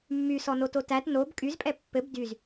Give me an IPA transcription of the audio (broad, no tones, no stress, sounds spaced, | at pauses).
mː y s ɔ n o t o t æ t n o b kʼ y z pʼ ɛ pː ɘ b d y z